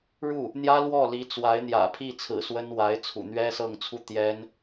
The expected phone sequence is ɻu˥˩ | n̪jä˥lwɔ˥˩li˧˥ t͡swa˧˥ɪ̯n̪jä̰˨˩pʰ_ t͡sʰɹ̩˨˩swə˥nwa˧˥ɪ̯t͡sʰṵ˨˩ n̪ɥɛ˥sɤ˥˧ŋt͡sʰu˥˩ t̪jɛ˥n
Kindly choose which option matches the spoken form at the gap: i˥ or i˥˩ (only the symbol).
i˥˩